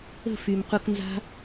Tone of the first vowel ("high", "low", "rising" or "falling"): falling